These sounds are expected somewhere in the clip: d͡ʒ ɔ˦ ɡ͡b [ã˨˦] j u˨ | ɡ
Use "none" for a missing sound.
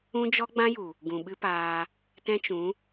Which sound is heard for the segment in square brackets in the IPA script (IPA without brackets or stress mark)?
ã˦